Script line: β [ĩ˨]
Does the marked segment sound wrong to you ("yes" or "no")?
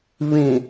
no